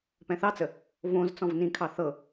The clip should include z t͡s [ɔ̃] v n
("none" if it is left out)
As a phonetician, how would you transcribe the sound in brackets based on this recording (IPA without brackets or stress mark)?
ɔ̃